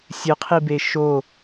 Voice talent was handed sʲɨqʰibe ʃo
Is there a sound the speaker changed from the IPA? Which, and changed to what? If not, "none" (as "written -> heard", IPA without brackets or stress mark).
none